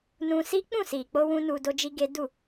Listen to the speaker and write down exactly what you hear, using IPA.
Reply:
nũ˧si˦ k͡pũ˦˨si˨k͡po˧wũ˧ nu˧do˦d͡ʒi˦ɡe˦ du˦˨

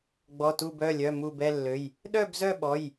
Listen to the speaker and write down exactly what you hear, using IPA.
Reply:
ɡ͡bɔ˩˧˩tu˧˩bœ˩˧˩lʲœ˩˧˩ mu˧˩bɛ˥˨lːø˩˧˩j | ɗœ˥˨bzœ˥˨ɓɔ˩˧˩j

